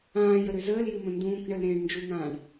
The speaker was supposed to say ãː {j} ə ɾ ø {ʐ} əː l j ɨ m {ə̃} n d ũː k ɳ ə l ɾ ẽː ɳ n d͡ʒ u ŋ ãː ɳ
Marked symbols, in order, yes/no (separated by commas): yes, no, yes